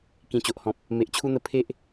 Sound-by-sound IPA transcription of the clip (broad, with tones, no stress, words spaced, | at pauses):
kĩ˨˩t͡ɕo˨ʔhɔ̃˨p̚ | me˨ʔt͡ɕʰu˦n̪ə˦ pʰe˦ʔ